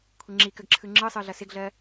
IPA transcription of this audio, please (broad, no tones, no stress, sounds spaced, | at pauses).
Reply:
kʷʰ ɪ ŋ͡ǁ i k ə ɡ ǁʰ ɯ ŋ͡ǁ ɯ sˤ ɯ ɮ ɐ s ɪ ɡ ɮ ɜ